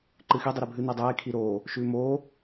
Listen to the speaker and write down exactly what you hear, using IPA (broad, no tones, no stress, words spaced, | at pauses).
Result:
ǃɨxi dˤiɾebʱɨ nidˤeː kʰiɾoː | ʃʉːmoː